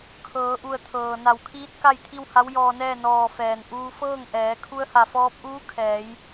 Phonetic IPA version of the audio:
kʰ ɤː˩˧ ʔ u˧˩ ə̯ t̪ʰ ɤː˩ n a˧˩ w kʰ iː˧˥ t̚ k a˥˨ j t̪ʰ i˥˨ w h a˧˥ w j ɔː˧ n ɛː˥˨ n ɔː˧˩ f ɛː˩ n ʔ uː˧ f ɤː˥˨ ŋ ʔ ɛː˩˧ kʰ u˧ ə̯ h a˧˩ f ɔː˧ p̚ ʔ uː˧˥ kʰ ɛː˩˧ j

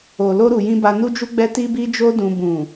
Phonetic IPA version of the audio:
o˨ l o˧ ɾ u˨ j ĩ˧ b a˧ n u˦ d͡ʒ u˦ ɡ͡b ɛ˦ t i˦ b i˦ d͡ʒ o˦ d ũ˧ b ũ˨

